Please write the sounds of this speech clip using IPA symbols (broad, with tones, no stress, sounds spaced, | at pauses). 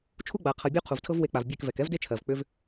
t͡ʃʰ u˦ ɡ͡b a˩ qʰ ɤ˩ bʲ o˦ qʰ u˩ v tʰ ɤ˦ v w e˧˩ k͡p a˩ v bʲ ɛ˧˩ k v ɛ˩ k ɛ˦ v d e˦ t͡ʃʰ ɜ˩ v k͡p ʏ˦ v